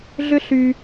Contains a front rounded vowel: yes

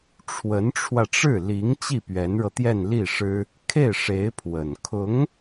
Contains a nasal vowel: no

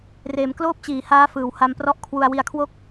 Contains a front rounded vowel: no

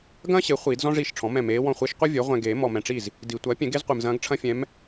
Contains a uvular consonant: yes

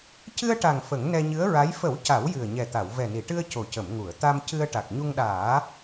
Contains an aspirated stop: no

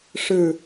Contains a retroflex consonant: yes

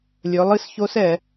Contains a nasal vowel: no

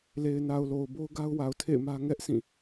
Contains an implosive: no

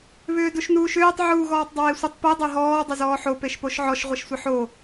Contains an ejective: no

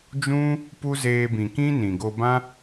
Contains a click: no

